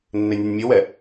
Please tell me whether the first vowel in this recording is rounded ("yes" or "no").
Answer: no